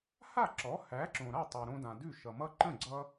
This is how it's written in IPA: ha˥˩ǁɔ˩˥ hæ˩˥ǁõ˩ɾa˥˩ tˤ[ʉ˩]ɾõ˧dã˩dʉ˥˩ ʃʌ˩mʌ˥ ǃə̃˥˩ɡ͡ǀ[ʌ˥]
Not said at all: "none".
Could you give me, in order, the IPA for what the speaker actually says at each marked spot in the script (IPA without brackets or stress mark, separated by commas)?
ʉ˩, ʌ˧